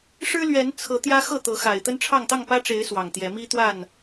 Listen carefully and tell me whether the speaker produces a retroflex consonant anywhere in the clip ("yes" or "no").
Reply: yes